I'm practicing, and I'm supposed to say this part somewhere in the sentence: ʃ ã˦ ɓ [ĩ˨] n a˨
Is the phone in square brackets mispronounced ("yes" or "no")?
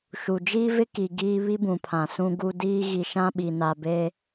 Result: yes